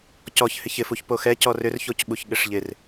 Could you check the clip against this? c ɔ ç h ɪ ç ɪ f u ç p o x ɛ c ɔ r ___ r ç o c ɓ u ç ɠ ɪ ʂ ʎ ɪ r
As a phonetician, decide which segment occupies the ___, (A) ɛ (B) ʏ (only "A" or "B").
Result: B